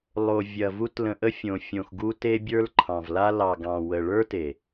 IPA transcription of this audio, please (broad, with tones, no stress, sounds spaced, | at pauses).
lˠ o˨ vʲ ɐ˨ v u˧ t l ə̃˧ ʔ ə˧ fʲ õ˨ fʲ õ˨ x ɡ u˧ t e˧ bʲ ə˞˧ l ǃʰ ɑ̃˨ v l a˧ l ɑ˨ ɡ ɑ̃˨ w ə˨ ɭ ə˞˦ t e˨